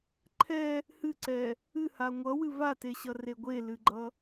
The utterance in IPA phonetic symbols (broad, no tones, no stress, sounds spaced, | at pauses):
ǃʰ ɛ | h ɨ ǀ ɛ | ɨ h a ŋʷ ʌ w ɨ v a t e ɕ ʌ r e ɡʷ e l ɨ ɡ͡ǃ ʌ